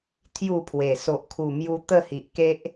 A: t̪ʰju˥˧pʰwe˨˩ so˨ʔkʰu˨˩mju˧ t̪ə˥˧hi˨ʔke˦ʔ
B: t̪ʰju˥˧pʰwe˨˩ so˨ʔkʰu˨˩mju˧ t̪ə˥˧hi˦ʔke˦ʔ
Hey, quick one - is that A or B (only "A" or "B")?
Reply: A